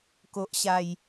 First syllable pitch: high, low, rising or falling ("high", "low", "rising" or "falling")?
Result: low